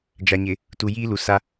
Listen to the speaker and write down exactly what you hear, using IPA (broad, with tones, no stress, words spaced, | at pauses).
d͡ʒa˨ɲɪ˨ | tu˨jiː˦ lu˨sa˦